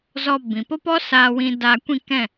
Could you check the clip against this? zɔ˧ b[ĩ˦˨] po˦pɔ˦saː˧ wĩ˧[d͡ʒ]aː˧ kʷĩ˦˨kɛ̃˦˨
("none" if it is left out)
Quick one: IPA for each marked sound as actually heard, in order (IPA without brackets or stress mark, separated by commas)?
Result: ĩ˨, d